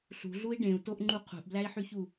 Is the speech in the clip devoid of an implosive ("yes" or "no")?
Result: yes